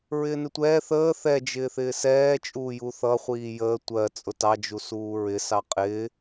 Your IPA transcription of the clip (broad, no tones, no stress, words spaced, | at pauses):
ɹɪːnɪtʷɛː θəː θɛ d͡ʒɪːθɪːsɛː t͡ʃʼuːjuθʌ χʷiːjəː tʷɜ t͡sʼʊtɑ d͡ʒusuːɹɪ sɑqʼɪː